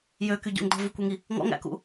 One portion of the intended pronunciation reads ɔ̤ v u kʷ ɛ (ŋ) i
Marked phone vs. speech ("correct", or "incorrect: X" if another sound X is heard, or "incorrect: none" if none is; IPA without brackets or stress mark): correct